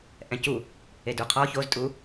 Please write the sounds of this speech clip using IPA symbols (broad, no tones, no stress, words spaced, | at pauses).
ʔɛ̃cu | eduqʰɔ çoztʼu